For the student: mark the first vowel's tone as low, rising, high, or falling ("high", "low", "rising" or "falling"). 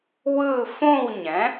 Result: falling